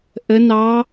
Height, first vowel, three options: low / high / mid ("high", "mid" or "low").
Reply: mid